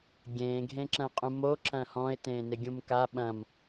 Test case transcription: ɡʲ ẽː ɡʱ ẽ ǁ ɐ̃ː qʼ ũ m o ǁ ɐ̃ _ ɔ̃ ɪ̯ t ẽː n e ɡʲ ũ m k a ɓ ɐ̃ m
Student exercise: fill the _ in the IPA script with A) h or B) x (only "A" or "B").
A